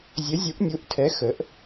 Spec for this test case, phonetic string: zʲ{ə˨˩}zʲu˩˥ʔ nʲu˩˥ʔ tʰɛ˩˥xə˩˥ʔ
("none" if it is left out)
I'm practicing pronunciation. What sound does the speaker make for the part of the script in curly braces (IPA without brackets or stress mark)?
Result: ə˩˥